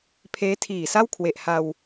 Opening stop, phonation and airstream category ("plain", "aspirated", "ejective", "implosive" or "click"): aspirated